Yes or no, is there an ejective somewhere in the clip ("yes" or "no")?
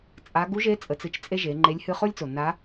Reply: yes